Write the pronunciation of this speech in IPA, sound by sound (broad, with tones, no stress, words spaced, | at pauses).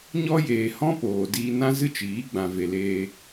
ɲɔ˦ jeː˧ hɔ̃˦poː˨ diː˧nã˦zɨ˦t͡ʃiː˨˦ ɡ͡bã˨ve˨leː˧